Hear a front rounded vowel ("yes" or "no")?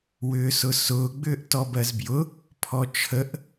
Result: yes